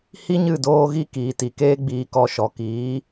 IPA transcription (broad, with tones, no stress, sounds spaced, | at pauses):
h i˦ ɲ ɨ˦˨ d oː˧ ɣ i˧ k iː˨ t i˨ k eː˦ ɡ͡b iː˧ k ɔ˧ ʃ ɔ˨ k iː˨˦